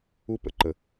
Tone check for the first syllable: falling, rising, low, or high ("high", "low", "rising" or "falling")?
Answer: high